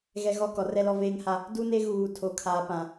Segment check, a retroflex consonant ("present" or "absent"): absent